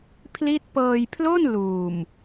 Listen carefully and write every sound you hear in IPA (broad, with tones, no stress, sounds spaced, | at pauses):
pʰ l i˦˥ t̚ p ɤː˧ j pʰ l o˥˩ n l uː˨˩ m